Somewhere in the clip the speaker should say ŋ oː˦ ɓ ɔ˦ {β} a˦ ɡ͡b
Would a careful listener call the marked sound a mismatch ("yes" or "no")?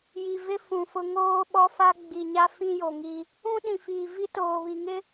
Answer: yes